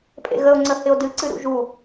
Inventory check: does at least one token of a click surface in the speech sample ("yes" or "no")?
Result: yes